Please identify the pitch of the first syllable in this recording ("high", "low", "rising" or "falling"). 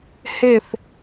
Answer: falling